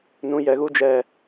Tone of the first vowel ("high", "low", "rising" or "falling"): low